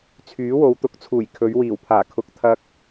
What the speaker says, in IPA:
t͡sʰyː˨˥wo˨˧wt̪ʊ˨˥k̚t͡sʰuː˨˩j kʰɵ˨˧ɥwiː˨˩wpʰaː˨˩ kʰʊ˨˥k̚ t̪ʰɐ˧k̚

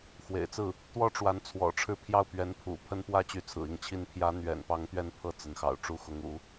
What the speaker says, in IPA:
xwḛ˨˩ɪ̯t͡sɹ̩˥˩ | t̪wɔ˥ʈ͡ʂwa˧˥nt͡sʰwɔ̰˨˩ʈ͡ʂʰɻ̩˥˧ pʰjɑ˥˩ʊ̯pɥɛ˧˥npʰṵ˨˩ pʰə˥npwä˥t͡ɕy˧˥ t͡sʰɹ̩˨˩i˥˩ŋt͡ɕʰi˥n pʰjä˧˥n̪ɥɛ̰˨˩npɑ˧˥ŋ t̪ɥɛ˥˧npʰɤ˥˩ t͡sə˧˥nxɑ̰˨˩ʊ̯ ʈ͡ʂu˥˩xʊ˧˥ŋ ṵ˨˩˦

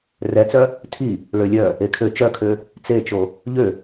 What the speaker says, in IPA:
rɛt͡sœ | tʰi | ɭølʲœ | ekʰø t͡ʃœkʰø | t͡set͡ʃo | ʎø

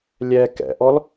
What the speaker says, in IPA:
lʲɛ kɛ̰ʔɔl

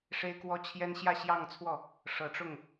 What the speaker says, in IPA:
ʂe˥ɪ̯kwɔ˥t͡ɕʰjɛ˥n ɕjä˥˧ɕjɑ˥˧ŋt͡sʰwɔ˥˩ | ʂɤ˨˩ʈ͡ʂʊ˥˩ŋ

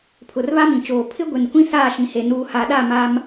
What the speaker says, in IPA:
pʰʊ˨rβa˦mĩ˨t͡ʃoː˨ pʰɪ˦ɡʷɪ˨n kʷĩ˦saː˦˨ʃĩ˨he˨ nuː˨ha˨ɗa˦˨ ma˦m

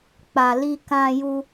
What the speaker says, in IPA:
k͡pa˨ li˧ kã˧ju˧

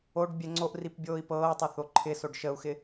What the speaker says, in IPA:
oɖ bʲɛŋ͡ǀoʔrip bʲoːi̯pɤːtˤə θoǃʰɪsoɖ ʃəu̯xɪ

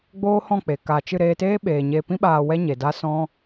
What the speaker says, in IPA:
ɡ͡boː˦hɔ̃˦˨k͡pe˨ ka˨t͡ʃɨ˦˨ ɾeː˧teː˦ ɓeː˨ ɲeː˧pĩ˦ ɓaː˧wɛ˦ɲe˨ da˦sɔ̃˦

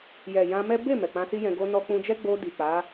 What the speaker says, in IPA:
jɛ˨jã˧mɛ˦ be˦˨ mɛ˨k͡pã˧si˦jɛ̃˧ ɡo˧ nɔ˧k͡pũ˧d͡ʒɛ˦ ɡ͡bo˧ di˨k͡pa˨˦

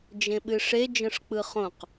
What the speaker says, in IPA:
d͡ʒẽɓɨʂe d͡ʒə̃ʂk͡pɯχõq

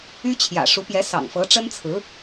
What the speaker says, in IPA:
y˥t͡ɕʰjä̰˨˩ ʂu˧˥pjɛ˧˥ sɑ̰˨˩ŋfɤ˧˥ ʈ͡ʂə˥nt͡sʰɹ̩˧˥

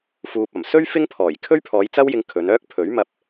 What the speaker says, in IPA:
fuː˨p̚ɐ˨˩msɵ˥ɥ fɪ˥ŋpʰɔː˨˩j kʰɵ˥ɥpʰɔː˨˧j t͡sɐ˥wjɪ˧ŋ kʰɵ˨˧nœː˥k̚ pʰɵ˨˥ɥmɐ˧p̚

